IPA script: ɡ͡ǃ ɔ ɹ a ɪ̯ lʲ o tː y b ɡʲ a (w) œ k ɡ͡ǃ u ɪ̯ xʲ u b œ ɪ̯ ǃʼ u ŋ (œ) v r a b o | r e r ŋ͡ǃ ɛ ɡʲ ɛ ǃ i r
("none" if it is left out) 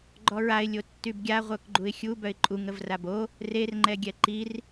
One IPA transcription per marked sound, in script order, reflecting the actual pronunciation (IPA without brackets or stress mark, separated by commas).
ʁʷ, ə